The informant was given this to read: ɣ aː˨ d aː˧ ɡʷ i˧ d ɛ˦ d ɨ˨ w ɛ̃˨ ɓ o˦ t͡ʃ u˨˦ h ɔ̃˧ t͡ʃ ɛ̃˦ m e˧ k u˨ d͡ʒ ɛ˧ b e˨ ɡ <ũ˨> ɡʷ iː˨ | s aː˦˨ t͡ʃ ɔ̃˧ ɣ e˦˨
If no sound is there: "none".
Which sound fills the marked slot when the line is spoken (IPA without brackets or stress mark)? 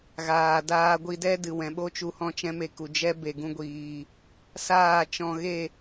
ũ˧